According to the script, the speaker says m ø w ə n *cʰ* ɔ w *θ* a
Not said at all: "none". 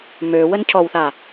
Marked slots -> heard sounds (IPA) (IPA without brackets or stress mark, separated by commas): cʰ, θ